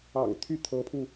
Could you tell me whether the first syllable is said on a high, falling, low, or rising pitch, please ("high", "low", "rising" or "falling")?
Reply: low